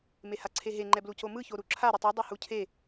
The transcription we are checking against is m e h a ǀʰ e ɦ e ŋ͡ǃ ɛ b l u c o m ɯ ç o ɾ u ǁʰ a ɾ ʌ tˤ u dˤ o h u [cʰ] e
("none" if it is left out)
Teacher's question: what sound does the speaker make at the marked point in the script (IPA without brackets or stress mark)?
cʰ